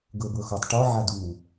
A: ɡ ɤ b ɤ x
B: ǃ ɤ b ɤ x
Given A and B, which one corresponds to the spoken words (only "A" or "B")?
A